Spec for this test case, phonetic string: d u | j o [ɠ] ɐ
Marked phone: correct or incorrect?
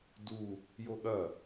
correct